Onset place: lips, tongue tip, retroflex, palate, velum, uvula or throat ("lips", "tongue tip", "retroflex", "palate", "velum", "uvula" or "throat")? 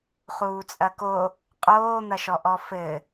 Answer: uvula